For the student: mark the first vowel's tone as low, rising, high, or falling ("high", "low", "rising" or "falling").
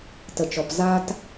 low